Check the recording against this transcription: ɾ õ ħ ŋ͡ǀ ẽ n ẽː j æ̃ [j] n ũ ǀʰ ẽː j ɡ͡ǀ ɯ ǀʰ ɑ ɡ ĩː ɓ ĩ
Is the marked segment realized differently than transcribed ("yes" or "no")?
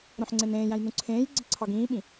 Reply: no